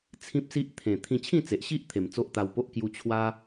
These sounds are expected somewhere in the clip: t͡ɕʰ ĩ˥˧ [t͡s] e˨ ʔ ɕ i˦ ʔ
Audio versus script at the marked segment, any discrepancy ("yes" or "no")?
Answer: no